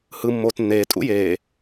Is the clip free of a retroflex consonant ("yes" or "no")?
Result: yes